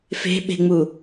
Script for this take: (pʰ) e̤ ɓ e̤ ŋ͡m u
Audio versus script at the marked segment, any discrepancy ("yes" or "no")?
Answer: yes